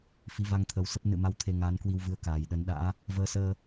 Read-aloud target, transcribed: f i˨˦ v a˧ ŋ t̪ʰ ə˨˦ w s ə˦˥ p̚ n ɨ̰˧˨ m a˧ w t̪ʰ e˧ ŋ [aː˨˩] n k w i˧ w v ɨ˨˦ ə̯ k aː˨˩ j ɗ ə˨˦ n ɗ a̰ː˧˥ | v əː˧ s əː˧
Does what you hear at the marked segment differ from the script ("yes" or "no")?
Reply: yes